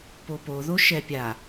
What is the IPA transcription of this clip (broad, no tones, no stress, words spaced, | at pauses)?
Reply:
popo ðoʃɛpʲa